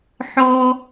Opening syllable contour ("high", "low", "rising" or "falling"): high